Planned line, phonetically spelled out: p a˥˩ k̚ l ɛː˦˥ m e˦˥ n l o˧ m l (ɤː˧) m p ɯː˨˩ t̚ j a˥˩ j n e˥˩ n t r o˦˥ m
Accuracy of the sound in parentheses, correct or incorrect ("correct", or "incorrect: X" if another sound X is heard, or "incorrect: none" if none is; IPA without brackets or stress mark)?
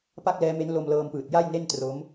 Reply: correct